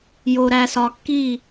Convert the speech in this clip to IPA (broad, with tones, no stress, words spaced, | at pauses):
jo˨ɾæ˨sɒ˨kːi˦˨